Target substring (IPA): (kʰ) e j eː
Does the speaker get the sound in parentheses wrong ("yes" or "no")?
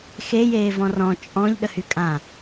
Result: yes